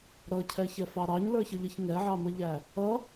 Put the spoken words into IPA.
ɾ ʌ cʰ ɛ ç ɛ f ɑ ɾ ɑ ɲ l ə˞ ç ʌ ʎ ə ç ŋ ɛ ʕ ɑ m ə ʎ æ | ʌ

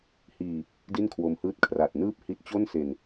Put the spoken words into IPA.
h iː˨˩ | d i˥˩ n kʰ w o˧ m h ɯː˥˩ t̚ kʰ r a˨˩ t̚ n ɯː˥˩ p̚ h i˦˥ t̚ t͡ɕ o˥˩ n s e˨˩ n

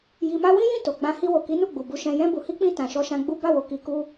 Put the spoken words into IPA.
j i˧ m a˦ w ĩ˦ j ĩ˦˨ t o˨ ɡ͡b ã˧ h i˧ w o˨ k i˨˦ n u˦˨ ɡ͡b u˨ b u˧ ʃ ɛ̃˧ j ɛ̃˧ b u˨ h i˧ k͡p ĩ˧ t ã˨ ʃ ɔ˧ ʃ ã˧ ɡ͡b u˦ b a˦˨ w o˨˦ k i˧ k u˦

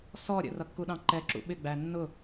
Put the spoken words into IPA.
s ɔ ɾʲ ə̰ r ʌ kː u ɗ ɑ̃ ǃ ɛ ǁ ṵ ɓ ɪ ɡ͡b æ nː ʊ

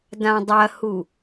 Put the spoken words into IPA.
d ã dˤ ɐ h u

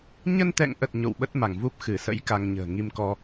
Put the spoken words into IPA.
ɲ ə˧ n t̪ ɛ̰˧˨ ŋ ʔ ə˨˩ t̚ ɲ o̰˧˨ w ɓ ə˦˥ t̚ m a˧˩ ŋ v u˦˥ p̚ x ɨ˧˩ s ə̰˧˥ j k a˧ ŋ ɲ ə̤ː˨˩ ŋ i˧ m k ɔ˧

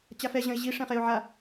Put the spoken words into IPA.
t͡ɕ a f ɛ ʑ ɐ̃ ɪ̯ ʑ i ʂ ɛ̃ χ e ʊ̯ ʕ a

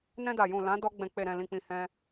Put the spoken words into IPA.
n ɛ̃˧ d a˨ j ũ˨ l ã˨˦ d ɔ˧ ɡ͡b ɛ̃˨ k͡p e˨ ɾ ɛ̃˨ l ĩ˨ k͡p ĩ˨ h ɛ̃˧

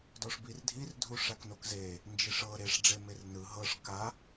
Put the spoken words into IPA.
d ɔ ʂ b i r dʱ i r dʱ u ʂ a k n o k z e | n d͡ʒ i ʂ ɤ ɾ e ʂ ɖ͡ʐ e m e r n ɯ ɦ ɤ ʂ k a

